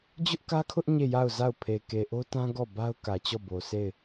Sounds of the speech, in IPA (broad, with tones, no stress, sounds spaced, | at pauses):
d͡ʑ ʊ˦ ʔ k ä˦ kʰ ʊ˦ ʔ ɲ e˦˨ j a˦˨ ʊ̯ z a˦˨ ʊ̯ pʰ e˨ k e˨ ʔ o˦ t ã˦ ɡ ɔ˦˨ b a˦ ʊ̯ k ä˨ t͡ɕ ɔ˦˨ b o˨ sʰ e˦˨ ɪ̯